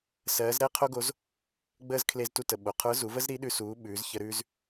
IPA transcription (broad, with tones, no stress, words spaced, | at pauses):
sɜː˩˧zɾɛ˥ qʰo˥ɡo˧˥z | ɡ͡bəː˧z kʰle˧ztu˧tə˩ ɓo˩qʰə˞˧˥zu˩˧və˥z ɾi˧˥ɗʉ˧suː˩˧ ɓʉː˩˧zçə˧ ɾʉː˧z